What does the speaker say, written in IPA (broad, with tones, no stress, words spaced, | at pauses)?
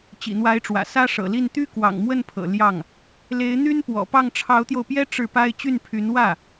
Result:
t͡ɕḭ˨˩n̪wa˧˥ɪ̯ʈ͡ʂwä̰˨˩ sä˥ʂɤ̰˨˩li˥˩n t̪y˥ kwɑ̰˨˩ŋmwə˥˩npʰɤ̰˨˩ ljɑ˥˩ŋ | le˧˥ɪ̯n̪y˥n pwɔ̰˨˩pɑ˥˩ŋ ʈ͡ʂʰɑ˧˥ʊ̯t̪jo˧ʊ̯pjɛ˥ ʈ͡ʂɻ̩˥˩pa˥ɪ̯ t͡ɕy˥˩npʰy˧˥n wä˥˩